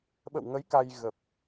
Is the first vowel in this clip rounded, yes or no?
no